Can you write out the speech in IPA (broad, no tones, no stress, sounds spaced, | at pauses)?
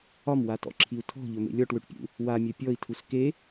ɒ m w a t ɔ̰ ǁʰ i u̯ tʰ ɔ̤ ʎ ɵ m ḛ lʲ ɔ ʈ w ø ʈ pʲ ṵ | w a mʲ œ pʲ ɔ i̯ tʰ u s k e